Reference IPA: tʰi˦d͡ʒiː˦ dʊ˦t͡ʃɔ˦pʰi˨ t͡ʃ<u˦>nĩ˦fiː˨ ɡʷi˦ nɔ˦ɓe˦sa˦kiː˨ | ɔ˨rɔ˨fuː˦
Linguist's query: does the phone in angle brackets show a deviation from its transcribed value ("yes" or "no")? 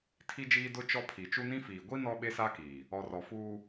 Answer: no